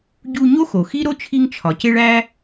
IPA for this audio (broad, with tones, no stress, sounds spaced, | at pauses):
ɟ u˧ ɲ o˥ x o˩ x i˥ ɾ o˥ t͡ʃʰ i˧ ŋ t͡ʃʰ ɒ˩ c e˧ ɭ æ˥